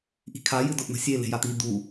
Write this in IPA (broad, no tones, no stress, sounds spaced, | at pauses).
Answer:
ʔ i̤ kʰ a j ɨ d ʊ ʔ n̪ ə̤ sʲ e l e̤ j a t̪ i d̪ u